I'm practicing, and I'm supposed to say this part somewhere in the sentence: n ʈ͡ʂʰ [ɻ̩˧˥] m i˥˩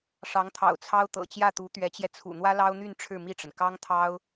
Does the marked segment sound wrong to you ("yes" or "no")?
yes